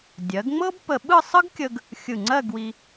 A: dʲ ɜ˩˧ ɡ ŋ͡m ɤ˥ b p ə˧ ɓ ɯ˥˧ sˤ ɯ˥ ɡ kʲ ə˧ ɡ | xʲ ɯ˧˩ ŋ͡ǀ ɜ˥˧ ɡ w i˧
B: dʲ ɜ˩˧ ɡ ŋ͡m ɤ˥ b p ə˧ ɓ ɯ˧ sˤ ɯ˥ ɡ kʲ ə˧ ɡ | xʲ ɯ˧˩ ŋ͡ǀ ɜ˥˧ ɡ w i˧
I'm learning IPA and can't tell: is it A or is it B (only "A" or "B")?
A